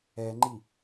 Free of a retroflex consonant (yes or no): yes